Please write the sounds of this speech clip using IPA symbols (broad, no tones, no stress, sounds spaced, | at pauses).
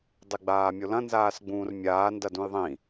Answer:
dˤ i ɡ͡b aː mʲ o l ɐ̃ n z aː s ɡ͡b ũː r mʲ aː n d ɐ d ũ j ðˤ ĩ